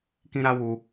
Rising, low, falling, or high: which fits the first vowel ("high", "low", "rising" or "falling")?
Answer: high